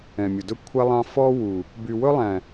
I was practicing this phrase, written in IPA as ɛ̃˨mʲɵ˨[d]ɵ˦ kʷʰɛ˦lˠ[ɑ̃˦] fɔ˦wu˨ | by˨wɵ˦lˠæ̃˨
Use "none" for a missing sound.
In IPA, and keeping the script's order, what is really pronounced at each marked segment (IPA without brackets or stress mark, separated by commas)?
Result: d, ɑ̃˦